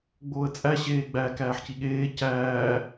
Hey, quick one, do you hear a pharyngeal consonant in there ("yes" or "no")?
yes